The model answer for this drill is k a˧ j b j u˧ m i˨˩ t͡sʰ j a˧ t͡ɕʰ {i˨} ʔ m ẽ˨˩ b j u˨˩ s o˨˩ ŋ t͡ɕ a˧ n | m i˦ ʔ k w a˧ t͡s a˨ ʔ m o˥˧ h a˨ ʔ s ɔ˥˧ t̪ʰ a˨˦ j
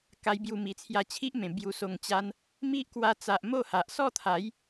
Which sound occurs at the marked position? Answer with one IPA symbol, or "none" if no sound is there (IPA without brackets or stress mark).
i˦